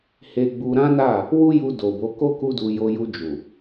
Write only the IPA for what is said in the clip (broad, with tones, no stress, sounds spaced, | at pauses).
h e˧ ɡ͡b u˧ ɾ ã˦ n a˦˨ | w u˦ j u˧ d o˨ b o˨˦ k o˦ k u˦ d u˧ j o˧ j u˧ d͡ʒ u˨